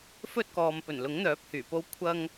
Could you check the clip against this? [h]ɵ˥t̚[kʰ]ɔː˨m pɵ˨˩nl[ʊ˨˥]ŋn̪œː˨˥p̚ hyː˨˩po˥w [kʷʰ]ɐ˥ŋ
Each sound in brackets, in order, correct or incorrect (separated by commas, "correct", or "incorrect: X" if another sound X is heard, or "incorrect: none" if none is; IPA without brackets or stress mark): incorrect: f, incorrect: k, correct, correct